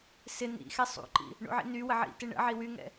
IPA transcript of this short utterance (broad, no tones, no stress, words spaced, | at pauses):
sɪ nḭxɛ sˤṵǃḭ | ɳṵʕḭnywə ʕḭtɪ ɳə̰ʕi wyŋɛ̰